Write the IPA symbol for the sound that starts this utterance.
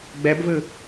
ɡ͡b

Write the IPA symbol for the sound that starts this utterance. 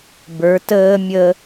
b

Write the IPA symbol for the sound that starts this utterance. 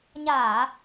ɲ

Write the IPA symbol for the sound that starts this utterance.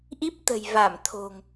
ʔ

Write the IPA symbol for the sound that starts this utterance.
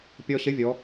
pʲ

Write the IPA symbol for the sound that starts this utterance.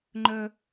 ŋ͡ǃ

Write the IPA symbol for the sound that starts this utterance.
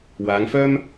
w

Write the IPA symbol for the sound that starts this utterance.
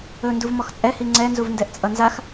ɵ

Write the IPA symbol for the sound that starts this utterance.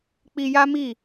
k͡p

